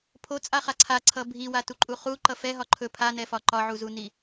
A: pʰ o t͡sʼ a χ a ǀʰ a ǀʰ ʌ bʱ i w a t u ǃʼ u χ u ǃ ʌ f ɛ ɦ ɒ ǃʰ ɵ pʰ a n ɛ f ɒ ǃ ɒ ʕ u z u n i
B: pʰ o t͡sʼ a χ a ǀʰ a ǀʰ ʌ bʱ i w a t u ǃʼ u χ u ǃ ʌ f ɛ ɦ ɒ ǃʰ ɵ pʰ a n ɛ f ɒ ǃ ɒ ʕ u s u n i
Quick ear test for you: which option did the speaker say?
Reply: A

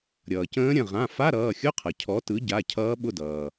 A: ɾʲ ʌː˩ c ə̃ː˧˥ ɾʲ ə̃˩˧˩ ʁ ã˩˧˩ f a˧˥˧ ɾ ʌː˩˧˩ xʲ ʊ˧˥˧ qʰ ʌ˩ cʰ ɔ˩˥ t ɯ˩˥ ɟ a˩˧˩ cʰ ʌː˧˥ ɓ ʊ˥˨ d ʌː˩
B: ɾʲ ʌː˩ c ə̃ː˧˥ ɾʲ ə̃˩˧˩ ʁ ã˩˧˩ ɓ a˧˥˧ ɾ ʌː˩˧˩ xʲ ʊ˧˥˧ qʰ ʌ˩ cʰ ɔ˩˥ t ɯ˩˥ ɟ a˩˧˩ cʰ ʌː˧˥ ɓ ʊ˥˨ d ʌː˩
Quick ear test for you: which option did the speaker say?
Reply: A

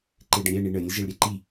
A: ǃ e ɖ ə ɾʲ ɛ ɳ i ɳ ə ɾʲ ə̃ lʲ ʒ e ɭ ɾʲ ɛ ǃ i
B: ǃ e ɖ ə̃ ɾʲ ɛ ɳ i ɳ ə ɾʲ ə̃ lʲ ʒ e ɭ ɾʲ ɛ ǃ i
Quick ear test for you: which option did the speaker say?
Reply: B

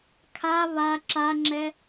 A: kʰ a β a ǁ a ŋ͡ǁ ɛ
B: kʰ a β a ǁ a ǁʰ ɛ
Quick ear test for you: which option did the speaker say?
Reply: A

